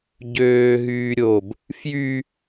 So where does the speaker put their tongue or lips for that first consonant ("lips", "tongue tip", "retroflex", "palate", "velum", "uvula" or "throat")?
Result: palate